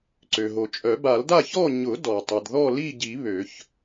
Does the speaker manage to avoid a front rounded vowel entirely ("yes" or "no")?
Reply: no